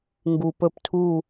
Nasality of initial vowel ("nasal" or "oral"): oral